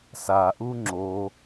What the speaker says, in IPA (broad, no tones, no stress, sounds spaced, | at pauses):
s a ʔ u ŋ͡ǁ o